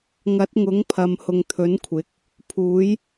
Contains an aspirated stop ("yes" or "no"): yes